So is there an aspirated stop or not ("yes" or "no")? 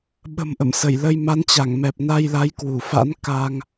no